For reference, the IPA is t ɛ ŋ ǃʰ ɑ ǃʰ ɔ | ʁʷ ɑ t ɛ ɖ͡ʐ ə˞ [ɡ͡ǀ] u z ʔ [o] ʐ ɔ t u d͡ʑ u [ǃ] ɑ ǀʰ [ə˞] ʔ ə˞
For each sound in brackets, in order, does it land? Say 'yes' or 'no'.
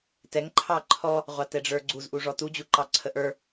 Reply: yes, no, yes, no

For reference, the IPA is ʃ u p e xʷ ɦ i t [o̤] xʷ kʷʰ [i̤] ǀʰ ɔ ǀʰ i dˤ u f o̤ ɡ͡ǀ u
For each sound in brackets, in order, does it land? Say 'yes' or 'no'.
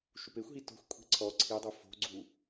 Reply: yes, yes

